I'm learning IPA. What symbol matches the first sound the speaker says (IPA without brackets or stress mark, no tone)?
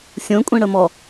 sʲ